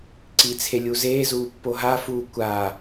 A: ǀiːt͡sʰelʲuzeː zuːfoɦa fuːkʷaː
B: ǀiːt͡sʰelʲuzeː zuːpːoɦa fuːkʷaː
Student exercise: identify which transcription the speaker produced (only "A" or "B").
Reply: B